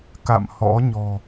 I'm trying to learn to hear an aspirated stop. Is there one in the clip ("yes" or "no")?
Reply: no